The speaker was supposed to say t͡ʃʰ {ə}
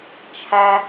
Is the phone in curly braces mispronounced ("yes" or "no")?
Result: yes